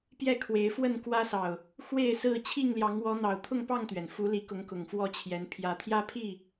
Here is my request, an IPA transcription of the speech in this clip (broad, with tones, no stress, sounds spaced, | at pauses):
p j ɛ˥˨ kʰ w e˨˦ ɪ̯ f w ə˥˨ n k w ä˦ s ɑ˨ ʊ̯ | x w e˥˨ ɪ̯ s ɹ̩˥˨ t͡ɕʰ i˥˨ ŋ l j ɑ˨˦ ŋ w ɔ˨˦ n̪ ɑ˨˩ ʊ̯ t̪ʰ ʊ˥˨ ŋ p ɑ˥˨ ŋ t̪ ɥ ɛ˩ n f u˨˦ l i˨˦ k ʊ˨˦ ŋ k ʊ˨˩ ŋ f w ɔ˥˨ t͡ɕʰ j ɛ˨˦ n pʰ j ä˨˩ t̪ʰ j ä˦ pʰ i˥˨